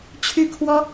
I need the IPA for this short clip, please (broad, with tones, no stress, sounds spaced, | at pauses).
t͡ɕʰ y˥ kʰ w ɔ˥